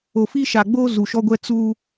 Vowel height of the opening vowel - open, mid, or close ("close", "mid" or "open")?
mid